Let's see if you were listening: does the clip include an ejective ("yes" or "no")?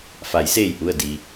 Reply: no